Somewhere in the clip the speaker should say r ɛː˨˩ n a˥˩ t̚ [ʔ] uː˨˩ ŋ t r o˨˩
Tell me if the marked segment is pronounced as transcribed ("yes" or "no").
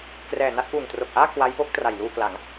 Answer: yes